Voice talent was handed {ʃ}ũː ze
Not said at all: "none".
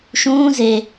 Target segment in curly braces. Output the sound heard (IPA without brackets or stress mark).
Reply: ʃ